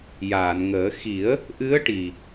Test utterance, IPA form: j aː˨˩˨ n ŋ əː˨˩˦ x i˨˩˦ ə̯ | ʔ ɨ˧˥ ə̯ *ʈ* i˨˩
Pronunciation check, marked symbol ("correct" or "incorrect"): correct